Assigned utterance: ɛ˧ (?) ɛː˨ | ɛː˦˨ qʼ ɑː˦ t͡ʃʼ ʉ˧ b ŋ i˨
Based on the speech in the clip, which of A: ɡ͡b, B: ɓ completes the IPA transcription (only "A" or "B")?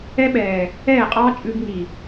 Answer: B